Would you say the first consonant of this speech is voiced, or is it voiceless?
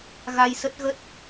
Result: voiced